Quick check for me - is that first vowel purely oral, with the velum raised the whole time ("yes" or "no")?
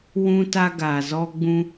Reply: no